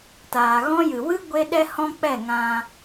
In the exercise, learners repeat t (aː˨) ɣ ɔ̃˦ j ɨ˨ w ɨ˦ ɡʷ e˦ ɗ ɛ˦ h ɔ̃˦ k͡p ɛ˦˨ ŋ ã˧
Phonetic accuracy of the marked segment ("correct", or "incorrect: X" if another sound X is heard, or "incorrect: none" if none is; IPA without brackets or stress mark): correct